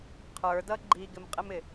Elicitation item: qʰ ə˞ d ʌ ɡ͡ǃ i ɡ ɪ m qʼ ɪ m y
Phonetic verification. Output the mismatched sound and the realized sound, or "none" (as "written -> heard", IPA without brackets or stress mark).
y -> ɪ